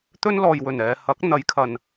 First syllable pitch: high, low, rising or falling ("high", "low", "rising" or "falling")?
high